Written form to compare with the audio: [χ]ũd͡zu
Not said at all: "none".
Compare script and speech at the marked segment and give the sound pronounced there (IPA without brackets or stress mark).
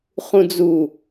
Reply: χ